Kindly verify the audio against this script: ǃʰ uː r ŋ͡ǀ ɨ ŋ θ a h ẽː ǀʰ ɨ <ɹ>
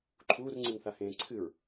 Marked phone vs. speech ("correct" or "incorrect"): correct